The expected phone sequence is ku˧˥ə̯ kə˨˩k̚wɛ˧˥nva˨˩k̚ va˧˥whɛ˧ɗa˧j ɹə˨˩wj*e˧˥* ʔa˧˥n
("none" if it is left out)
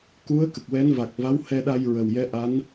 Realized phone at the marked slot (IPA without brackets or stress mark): ɛ˧˥